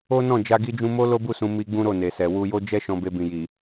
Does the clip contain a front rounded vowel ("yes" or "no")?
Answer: no